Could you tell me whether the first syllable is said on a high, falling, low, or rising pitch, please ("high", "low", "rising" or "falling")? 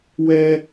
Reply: high